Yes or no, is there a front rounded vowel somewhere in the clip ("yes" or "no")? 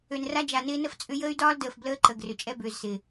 yes